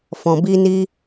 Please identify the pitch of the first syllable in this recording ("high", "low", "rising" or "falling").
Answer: low